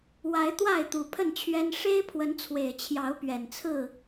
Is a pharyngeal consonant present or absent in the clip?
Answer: absent